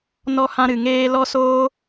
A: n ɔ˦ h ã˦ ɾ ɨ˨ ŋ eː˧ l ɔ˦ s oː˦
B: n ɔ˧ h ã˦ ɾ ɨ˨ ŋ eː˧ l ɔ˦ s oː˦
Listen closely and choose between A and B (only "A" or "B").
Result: A